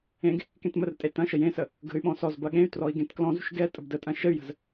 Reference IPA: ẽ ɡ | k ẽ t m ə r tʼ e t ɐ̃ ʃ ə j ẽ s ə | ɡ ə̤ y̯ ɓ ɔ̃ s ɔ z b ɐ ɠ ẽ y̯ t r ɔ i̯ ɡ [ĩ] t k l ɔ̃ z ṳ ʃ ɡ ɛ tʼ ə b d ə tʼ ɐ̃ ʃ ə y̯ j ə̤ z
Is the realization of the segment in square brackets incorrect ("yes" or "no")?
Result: yes